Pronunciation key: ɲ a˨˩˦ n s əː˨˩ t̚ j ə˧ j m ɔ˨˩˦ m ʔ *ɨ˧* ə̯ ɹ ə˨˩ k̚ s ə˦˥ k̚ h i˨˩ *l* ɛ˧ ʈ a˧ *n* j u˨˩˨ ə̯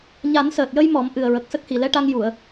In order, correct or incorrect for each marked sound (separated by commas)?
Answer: incorrect, correct, incorrect